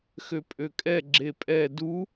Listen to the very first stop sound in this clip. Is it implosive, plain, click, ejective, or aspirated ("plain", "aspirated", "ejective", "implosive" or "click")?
ejective